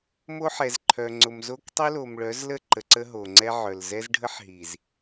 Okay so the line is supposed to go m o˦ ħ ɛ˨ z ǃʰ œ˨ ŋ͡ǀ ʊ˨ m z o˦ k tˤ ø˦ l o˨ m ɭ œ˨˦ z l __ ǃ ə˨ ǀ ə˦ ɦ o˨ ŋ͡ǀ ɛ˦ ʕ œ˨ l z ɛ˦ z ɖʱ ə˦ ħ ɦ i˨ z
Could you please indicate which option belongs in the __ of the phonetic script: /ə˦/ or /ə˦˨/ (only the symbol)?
ə˦˨